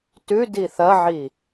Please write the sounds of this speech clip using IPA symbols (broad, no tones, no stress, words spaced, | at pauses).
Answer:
tʉdi θɐʕi